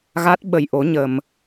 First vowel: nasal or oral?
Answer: oral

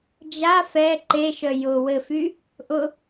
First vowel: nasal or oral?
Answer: oral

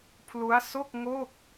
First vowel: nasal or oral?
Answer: oral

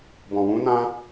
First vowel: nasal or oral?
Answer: nasal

